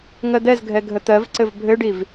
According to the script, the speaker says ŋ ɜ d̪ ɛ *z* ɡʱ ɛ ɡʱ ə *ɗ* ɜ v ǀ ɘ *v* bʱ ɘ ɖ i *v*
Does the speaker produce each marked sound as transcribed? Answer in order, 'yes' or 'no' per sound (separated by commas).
yes, no, yes, yes